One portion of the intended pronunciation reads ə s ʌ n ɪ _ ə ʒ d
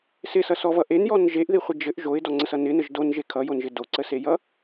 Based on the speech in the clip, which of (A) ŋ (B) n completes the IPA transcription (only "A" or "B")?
B